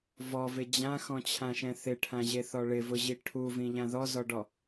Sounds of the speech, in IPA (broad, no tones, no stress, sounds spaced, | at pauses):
v ɔ v ɪ d͡ʑ ã x ɔ̃ t͡ɕʰ ã ʃ ɛ̃ θ ɪ ʈʰ ã ʑ e θ ɔ ɭ ɪ v ʊ ʑ i ʈʰ u v ĩ ʎ ã ð ɔ z ɔ ɖ ɔ